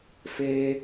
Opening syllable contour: high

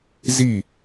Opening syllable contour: falling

